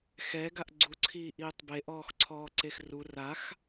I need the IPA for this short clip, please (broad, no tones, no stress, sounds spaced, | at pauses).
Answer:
x ɛ ɡ a ʔ ɡ͡ǀ u ǀʰ iː ʔ iː tˤ b e ʔ ɔː x ǀʰ ɔː ǀ e x r u r a x